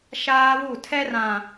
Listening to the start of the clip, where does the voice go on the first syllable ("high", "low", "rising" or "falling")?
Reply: high